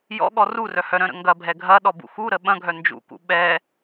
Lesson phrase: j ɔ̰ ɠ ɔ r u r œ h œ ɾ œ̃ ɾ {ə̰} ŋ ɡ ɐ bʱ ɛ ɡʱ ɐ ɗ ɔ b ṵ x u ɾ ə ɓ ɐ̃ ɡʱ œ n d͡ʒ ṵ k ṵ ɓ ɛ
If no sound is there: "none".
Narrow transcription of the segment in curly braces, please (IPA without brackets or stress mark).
ə̰